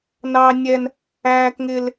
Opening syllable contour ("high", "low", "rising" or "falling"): high